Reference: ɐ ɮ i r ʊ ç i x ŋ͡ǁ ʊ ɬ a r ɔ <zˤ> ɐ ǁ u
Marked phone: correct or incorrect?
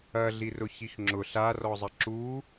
correct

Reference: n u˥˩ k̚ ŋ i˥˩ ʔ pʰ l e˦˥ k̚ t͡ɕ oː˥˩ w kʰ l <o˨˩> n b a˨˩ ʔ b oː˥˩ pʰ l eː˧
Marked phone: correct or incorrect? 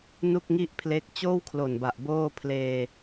correct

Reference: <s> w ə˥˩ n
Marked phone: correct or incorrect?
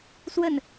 correct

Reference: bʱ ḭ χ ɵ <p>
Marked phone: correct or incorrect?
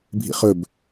incorrect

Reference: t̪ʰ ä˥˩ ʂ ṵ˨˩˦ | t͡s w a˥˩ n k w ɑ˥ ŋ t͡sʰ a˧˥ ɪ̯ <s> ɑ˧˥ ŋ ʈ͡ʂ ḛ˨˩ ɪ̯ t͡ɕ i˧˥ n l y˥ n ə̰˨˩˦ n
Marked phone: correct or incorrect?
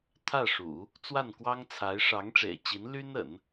incorrect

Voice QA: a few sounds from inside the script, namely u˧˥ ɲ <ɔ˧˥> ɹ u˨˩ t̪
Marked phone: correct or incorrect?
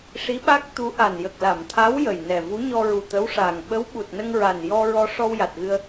incorrect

